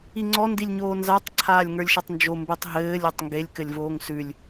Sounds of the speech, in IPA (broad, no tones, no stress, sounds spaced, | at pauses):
i ŋ͡ǀ ɔ n d i lʲ ɲ oː n z a tˤ ǀʰ aː lʲ ŋ ə˞ lʲ ʃ ɘ tˤ n d͡ʒ o m b ʉ tˤ ɦ ɘː lʲ o tˤ ŋ ɡ e lʲ k ɘ lʲ v oː ŋ s ʉ lʲ